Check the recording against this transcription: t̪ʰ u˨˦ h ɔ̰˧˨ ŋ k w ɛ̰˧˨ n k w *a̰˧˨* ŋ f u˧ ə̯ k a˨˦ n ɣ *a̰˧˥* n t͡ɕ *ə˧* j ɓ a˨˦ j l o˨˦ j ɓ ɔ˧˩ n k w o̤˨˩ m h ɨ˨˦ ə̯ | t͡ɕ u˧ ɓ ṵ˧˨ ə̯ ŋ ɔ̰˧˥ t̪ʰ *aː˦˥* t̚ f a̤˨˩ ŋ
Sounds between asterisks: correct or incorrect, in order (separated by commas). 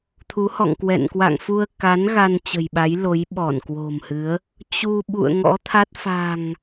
correct, incorrect, incorrect, incorrect